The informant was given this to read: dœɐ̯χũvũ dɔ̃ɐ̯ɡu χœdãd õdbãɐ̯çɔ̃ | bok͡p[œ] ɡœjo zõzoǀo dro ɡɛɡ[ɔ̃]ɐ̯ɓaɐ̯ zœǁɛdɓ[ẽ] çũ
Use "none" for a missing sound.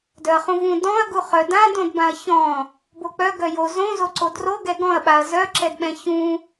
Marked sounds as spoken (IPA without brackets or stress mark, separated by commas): œ, ɔ̃, ɛ̃